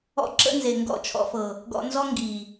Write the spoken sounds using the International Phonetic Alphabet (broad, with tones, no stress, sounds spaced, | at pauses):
ɔ̰˦ ǁ ə̰˦ n z e˨ ŋ ɡ ɔ̰˦˨ t͡ʃʰ ɔ̰˧ f ɤ˨ | ɡ ɔ̰˧ n z ɔ˦ ŋ ɡ i˨